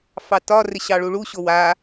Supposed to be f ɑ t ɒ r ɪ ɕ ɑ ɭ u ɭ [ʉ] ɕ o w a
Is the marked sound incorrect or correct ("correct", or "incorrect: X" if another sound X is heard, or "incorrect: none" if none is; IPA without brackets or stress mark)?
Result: incorrect: u